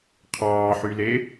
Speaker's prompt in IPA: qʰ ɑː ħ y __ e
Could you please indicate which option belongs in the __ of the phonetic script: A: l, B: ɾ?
A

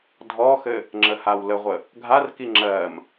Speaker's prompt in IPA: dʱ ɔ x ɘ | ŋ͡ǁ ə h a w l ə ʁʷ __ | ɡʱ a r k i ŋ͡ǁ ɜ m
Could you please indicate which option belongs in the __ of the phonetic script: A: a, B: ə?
B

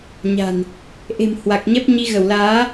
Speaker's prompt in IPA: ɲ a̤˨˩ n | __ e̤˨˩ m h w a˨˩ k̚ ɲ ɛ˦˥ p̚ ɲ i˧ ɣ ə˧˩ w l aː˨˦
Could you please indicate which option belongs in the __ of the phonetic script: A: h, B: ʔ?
B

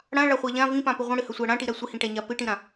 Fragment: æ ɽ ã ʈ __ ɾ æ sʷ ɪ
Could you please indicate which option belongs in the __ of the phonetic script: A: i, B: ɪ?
A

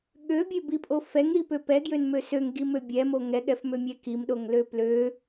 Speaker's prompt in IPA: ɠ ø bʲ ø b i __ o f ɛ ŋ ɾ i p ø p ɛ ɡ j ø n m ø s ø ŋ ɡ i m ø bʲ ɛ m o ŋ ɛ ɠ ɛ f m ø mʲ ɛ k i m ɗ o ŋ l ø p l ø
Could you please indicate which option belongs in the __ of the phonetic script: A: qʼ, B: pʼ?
B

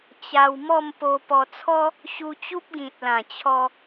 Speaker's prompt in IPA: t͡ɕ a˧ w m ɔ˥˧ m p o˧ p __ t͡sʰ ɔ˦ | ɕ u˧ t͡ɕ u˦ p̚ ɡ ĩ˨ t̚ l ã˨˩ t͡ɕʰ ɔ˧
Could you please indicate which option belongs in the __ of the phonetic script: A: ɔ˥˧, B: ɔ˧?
B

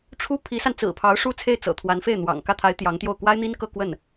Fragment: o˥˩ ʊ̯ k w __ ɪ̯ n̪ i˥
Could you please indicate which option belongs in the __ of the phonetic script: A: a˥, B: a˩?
A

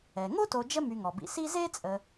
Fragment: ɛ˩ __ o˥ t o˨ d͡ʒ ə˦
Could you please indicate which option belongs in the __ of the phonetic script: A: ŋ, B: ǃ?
A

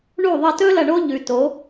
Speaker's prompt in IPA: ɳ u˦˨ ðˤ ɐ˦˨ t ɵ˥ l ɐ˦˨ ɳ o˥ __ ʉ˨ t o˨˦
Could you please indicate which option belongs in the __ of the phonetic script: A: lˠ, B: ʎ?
B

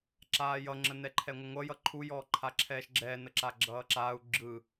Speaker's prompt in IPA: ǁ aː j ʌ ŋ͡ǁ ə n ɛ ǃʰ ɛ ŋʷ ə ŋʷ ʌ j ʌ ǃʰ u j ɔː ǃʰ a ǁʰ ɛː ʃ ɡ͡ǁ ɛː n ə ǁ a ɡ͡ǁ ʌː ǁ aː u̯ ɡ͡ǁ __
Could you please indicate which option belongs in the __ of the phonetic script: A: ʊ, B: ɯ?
B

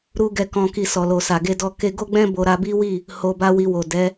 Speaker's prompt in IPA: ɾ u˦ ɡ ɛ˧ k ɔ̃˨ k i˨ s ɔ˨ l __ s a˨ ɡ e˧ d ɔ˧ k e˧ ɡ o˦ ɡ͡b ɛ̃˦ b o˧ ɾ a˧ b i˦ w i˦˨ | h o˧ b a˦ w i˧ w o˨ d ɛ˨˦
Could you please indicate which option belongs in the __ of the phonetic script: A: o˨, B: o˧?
A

